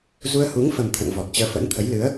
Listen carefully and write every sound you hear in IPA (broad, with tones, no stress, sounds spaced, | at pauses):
z u˧ ə̯ h u˨˦ ŋ f ə˨˩ m t̪ʰ ə̰˧˨ n v ɔ˨˩ t̚ t͡ɕ əː˨˦ f ə̰˧˥ n t̪ʰ ə˨˦ j l ɨ˨˦ ə̯